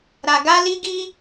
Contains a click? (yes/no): no